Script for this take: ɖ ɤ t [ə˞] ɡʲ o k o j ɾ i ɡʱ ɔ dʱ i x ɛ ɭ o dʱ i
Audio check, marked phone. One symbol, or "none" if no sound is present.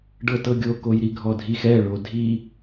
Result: ɤ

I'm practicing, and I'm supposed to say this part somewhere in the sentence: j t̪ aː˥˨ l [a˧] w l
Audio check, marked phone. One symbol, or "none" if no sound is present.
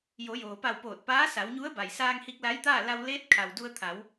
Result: a˧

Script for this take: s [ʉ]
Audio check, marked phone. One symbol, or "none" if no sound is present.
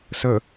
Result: ə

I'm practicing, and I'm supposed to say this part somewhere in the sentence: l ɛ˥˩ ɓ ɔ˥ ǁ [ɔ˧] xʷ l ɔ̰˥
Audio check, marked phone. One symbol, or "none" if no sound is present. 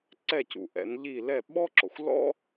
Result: ɔ˩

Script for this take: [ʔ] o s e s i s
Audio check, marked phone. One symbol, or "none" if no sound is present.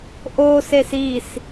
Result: ʔ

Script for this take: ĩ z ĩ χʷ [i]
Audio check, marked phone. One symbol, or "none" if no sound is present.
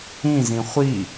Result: i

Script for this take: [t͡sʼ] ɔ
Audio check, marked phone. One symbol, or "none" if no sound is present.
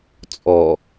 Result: t͡sʼ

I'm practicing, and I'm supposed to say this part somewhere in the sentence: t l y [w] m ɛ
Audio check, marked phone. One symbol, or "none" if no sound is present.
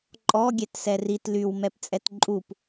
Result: w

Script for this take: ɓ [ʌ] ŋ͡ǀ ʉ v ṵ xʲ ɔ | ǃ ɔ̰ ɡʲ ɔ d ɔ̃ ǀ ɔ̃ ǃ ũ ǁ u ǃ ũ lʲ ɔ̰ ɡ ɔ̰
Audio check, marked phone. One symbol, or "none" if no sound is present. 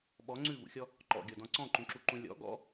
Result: ɔ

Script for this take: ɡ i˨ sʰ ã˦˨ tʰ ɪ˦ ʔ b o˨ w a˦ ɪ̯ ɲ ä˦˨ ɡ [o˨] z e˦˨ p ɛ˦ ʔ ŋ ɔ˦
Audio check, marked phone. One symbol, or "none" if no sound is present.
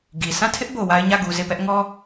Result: u˨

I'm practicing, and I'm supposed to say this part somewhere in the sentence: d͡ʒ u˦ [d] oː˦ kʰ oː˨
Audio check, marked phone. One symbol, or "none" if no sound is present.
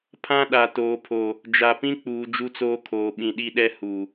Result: t͡s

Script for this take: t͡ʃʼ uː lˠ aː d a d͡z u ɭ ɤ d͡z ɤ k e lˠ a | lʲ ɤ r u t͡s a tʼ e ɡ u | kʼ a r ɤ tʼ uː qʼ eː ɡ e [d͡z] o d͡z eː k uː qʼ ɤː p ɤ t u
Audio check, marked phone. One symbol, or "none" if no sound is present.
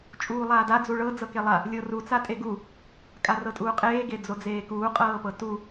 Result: d͡z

